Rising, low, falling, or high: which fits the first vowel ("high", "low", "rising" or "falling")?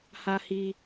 high